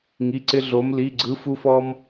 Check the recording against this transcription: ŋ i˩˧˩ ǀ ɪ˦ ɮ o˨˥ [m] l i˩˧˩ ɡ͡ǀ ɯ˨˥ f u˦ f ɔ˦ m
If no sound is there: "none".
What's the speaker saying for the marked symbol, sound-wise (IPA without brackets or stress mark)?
m